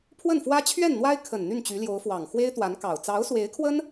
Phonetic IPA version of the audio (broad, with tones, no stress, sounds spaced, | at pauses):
pʰ w ə˥˩ n f w ä˥ t͡ɕʰ ɥ ɛ˥˩ n n̪ w a˥ ɪ̯ kʰ ə˨˩ n n̪ y˥˩ n t͡ɕ y˧˥ l j o˧˥ ʊ̯ f w ɑ˨˩ ŋ x w e˥ ɪ̯ t̪ w a˧˥ n k ɑ˨˩ ʊ̯ t͡s ɑ˧˥ ʊ̯ s w e˧˥ ɪ̯ kʰ w ə˥ n